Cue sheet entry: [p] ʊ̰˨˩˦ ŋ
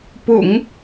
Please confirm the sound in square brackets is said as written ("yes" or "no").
yes